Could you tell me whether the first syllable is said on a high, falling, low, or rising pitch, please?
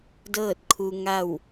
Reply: falling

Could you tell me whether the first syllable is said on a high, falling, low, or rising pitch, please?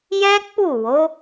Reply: high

